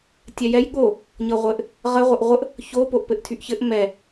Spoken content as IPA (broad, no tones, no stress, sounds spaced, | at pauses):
tʲ ɛ j ɛ j ɠ o | ɲ ɤ ʁʷ ɘ ʔ | ʁ ə ʁʷ ə ʔ ʁʷ ə ʔ | ç o p o ʔ p ɘ ʔ tʰ y ʔ ç ɘ ʔ m ɛ